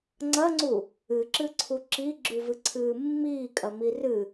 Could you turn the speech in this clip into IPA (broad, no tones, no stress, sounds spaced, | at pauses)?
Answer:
ŋ͡ǀ ɐ ŋ͡ǀ u | ɨ ǁ ɨ ǀʰ u ǁ i ɡ͡ǁ ʉ v ɨ ǀʰ ɨː mː iː kʼ ɐ m i r ɨ